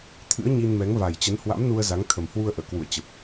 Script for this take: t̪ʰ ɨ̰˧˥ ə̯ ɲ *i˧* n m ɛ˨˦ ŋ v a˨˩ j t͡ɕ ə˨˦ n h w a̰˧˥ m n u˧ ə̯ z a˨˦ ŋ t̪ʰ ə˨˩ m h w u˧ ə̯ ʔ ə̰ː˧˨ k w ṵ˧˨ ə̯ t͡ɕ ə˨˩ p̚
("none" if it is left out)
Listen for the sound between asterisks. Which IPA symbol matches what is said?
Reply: i˧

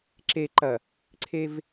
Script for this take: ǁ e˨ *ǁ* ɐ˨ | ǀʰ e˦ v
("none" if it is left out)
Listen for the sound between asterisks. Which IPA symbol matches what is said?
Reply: ǃ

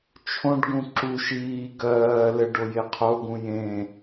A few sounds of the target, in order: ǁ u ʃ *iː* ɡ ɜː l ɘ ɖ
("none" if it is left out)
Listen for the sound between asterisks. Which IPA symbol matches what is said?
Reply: iː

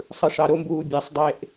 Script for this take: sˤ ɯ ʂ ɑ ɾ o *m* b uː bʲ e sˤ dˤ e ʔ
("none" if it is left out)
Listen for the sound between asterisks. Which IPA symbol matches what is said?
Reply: m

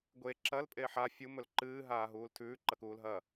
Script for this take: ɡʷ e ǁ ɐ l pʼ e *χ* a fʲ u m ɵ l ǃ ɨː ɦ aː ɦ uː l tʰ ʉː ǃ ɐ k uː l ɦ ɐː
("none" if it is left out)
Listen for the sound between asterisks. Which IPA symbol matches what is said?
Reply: ħ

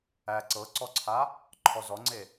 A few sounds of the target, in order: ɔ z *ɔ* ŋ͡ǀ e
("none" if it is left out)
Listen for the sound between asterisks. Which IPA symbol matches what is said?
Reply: ɔ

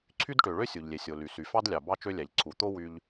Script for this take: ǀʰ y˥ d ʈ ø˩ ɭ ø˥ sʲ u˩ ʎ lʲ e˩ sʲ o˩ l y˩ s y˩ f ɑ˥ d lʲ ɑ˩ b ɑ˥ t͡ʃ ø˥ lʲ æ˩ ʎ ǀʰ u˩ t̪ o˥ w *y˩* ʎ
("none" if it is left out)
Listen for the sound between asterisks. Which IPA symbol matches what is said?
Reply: y˥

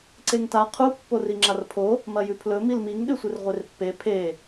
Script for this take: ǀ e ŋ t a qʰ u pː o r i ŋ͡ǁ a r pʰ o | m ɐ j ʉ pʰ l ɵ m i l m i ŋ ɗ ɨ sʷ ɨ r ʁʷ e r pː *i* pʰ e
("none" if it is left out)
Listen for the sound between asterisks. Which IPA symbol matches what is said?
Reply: e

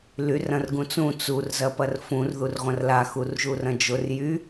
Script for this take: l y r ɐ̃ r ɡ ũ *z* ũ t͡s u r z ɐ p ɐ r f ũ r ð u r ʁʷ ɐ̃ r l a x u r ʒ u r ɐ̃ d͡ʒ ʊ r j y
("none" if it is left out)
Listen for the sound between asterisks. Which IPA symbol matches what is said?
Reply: t͡s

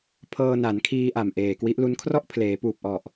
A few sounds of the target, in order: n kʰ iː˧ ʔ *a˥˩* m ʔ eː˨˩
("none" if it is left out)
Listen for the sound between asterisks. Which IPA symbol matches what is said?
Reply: a˨˩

